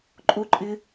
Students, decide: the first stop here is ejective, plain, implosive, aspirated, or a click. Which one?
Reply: click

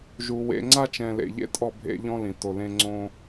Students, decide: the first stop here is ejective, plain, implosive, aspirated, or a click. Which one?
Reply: click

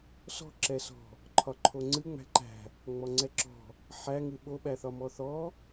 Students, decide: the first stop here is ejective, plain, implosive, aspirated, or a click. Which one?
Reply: click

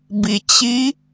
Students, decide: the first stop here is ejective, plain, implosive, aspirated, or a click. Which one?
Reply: plain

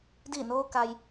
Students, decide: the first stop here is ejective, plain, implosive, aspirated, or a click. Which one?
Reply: plain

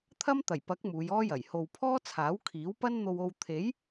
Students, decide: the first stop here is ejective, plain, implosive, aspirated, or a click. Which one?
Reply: aspirated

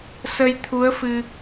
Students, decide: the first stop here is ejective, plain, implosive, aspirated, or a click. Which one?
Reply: aspirated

